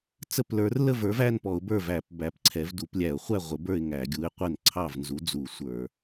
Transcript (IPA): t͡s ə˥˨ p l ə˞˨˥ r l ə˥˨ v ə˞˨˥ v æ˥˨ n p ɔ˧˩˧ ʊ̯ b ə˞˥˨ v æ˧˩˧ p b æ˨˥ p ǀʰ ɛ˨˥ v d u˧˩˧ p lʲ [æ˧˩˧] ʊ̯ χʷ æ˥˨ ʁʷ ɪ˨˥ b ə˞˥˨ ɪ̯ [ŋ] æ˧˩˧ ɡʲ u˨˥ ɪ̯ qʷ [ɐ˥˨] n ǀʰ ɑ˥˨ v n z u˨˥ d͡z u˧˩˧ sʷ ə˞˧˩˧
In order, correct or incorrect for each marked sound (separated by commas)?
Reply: correct, correct, incorrect